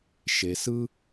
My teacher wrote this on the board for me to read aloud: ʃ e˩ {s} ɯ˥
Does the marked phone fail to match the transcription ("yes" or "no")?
no